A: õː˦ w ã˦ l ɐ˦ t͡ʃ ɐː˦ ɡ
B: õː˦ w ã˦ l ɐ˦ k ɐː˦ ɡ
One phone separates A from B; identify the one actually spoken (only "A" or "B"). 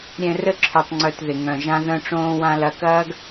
B